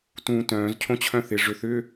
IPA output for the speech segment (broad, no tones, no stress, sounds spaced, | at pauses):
t ũː t œ̃ː z cʰ õ t͡ɕʰ œ̃ θ ɪ ʐ ʏ θ ʏ